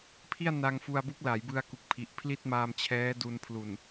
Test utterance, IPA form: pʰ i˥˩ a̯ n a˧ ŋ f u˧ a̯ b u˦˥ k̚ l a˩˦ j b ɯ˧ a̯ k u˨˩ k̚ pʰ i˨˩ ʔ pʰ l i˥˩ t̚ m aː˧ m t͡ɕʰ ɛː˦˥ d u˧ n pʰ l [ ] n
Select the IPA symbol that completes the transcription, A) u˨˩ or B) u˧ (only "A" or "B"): A